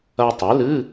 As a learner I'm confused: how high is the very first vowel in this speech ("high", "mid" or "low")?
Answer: low